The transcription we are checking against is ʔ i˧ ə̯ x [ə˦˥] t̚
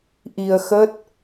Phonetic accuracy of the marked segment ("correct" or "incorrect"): correct